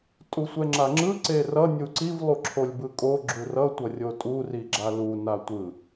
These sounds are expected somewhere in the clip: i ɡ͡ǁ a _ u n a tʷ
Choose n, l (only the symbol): l